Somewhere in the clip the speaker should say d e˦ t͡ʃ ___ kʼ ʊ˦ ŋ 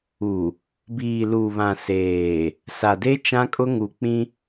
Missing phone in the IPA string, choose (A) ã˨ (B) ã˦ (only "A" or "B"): B